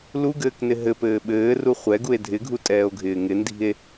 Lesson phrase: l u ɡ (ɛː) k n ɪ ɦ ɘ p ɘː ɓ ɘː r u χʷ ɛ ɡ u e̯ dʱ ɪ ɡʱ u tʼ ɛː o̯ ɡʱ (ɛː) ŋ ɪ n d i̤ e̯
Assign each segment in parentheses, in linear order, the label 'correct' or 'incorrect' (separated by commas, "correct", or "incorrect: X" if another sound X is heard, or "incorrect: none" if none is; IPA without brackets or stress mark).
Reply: incorrect: ɘː, incorrect: ɪː